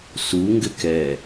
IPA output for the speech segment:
su ŋɡɘkɛ

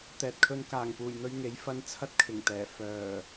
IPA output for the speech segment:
t̪ɛː˨t̚kʰɵ˧n kaː˨˩ŋpuː˨˩jn̪ɵ˧ɥ ŋe˨˥jfɐ˧n t͡sʰɐ˥t̚kʰɪ˨˩ŋt̪ɛː˨˩ fœː˨˩

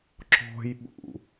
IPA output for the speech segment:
ǁɔ̤jɓṵ

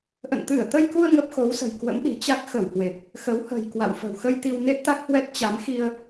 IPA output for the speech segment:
ʔə̰˧˨nt̪ɨ˧˩ə̯t̪ə˧jku˧ə̯ ŋə˦˥p̚xo˨˦wsə̤˨˩j kwə̰˧˥mɗi̤˨˩t͡ɕa˦˥k̚ xə˧˩whwe˨˩p̚ | xə˨˦whə̤˨˩j kwa̰˧˨wfə̤˨˩wxə˧j t̪i˧wne˦˥t̚t̪a˦˥k̚hwɛ˦˥t̚ t͡ɕa˨˦mxi˧ə̯

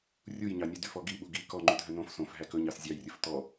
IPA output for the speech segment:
rʲujɲɑnʲʉdy fɔɡi ɓuɡi kɔ ŋ͡ǃydʱœnõf sõf ɦækɵ ɲɑszʲɑjrʲɵf tɔ

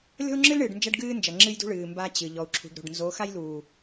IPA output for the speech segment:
lʲɔ̤˦u̯ŋ͡ǁɨ˦lɳɨː˨ɖ nd͡ʒɐ˦ɖɡɨː˦nd͡ʒɐ˨ ŋ͡ǁɨ˦jdṳ˦ ɭɨː˨ mba˦t͡ɕɨ˨ ʎɔ˨u̯ǁʰṳ˨ɖɾo̤˨ɖ nzo˨˦ xa˦jluː˨

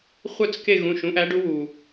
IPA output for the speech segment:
χʷœ˥˧t͡s ke˥˧ ɣũ˩˧˩ʃũ˨˦ʔæ˨˦ɖu˨˦ wu˩

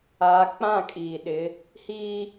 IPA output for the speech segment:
aː˨˦k͡pã˦˨kʼiː˨ɗɪ˨˦ | hiː˦

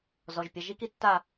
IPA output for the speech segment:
zɔ˩˧˩ʒ pʲɐ˩˧˩ʒi˧˥ki˦˨tːa˦˨

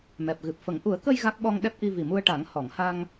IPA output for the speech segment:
mɛ˨˩p̚ɣɨ˨˩p̚fə˨˩˦ŋ ʔu˨˩˦ə̯kə˧j ɣa˦˥k̚ɓɔ˧ŋɗɛ˦˥p̚ ʔi˧vi˨˩mu˧ə̯ʈa˨˩˦ŋ hɔ˨˩˨ŋha˧ŋ

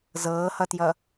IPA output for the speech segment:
zɤːhʌtjʌ

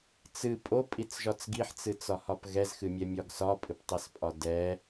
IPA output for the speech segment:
t͡sɨ pʼopʼit͡sʒɒt͡s ɡiħt͡sɨt͡sɒhɒp ɣɛzxɨmʲɛmʲɒɡ sɒpʼɨptˤɛspʼɒ dɛ

